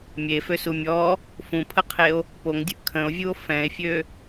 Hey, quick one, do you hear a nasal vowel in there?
yes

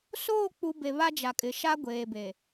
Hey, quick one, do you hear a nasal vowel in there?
no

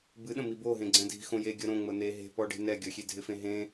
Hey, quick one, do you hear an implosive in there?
yes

